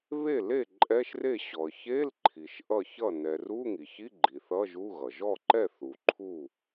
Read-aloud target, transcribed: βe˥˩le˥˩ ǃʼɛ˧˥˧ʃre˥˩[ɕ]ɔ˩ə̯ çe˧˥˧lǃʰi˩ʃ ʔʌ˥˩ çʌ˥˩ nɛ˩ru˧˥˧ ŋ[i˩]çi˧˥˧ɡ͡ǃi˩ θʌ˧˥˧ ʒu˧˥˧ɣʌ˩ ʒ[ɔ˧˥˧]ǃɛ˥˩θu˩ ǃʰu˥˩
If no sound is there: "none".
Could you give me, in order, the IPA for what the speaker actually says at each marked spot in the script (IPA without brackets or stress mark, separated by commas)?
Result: ɕ, i˩, ɔ˥˩